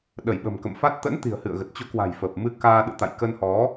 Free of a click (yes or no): yes